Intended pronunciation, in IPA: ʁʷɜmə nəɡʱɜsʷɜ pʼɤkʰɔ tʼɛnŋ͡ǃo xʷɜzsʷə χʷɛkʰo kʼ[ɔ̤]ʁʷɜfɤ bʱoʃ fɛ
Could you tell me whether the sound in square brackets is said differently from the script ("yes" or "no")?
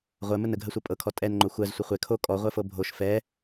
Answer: yes